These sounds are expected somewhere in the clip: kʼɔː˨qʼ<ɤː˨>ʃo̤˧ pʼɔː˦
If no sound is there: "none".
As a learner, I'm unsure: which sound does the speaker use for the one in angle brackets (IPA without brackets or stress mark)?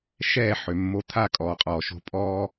ɔː˨